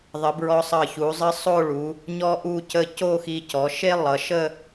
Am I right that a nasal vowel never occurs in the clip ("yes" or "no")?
yes